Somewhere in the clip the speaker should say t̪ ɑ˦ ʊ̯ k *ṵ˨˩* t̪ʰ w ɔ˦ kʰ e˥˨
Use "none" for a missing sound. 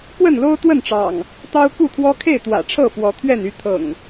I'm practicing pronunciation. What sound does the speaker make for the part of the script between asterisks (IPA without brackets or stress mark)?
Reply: u˥˨